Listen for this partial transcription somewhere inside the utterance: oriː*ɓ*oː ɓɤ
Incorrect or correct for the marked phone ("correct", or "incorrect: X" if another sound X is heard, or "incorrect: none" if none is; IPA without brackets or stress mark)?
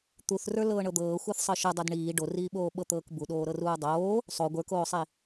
correct